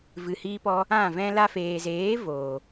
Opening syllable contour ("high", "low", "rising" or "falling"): low